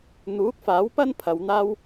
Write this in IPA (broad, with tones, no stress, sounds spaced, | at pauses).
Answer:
n̪ uː˨˥ k̚ f aː˨˥ w p ɐ˥ n pʰ ɐ˨˧ w n̪ aː˥ w